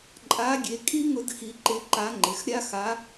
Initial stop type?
click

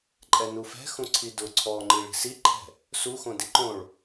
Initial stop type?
click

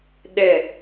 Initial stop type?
implosive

